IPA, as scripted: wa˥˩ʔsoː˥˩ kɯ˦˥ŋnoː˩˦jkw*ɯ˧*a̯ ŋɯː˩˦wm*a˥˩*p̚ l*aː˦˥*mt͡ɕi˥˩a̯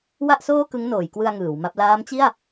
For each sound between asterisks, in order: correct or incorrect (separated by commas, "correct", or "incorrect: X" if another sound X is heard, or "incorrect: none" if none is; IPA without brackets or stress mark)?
correct, correct, correct